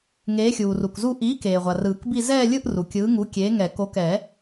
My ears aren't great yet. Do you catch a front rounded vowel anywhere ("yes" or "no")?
no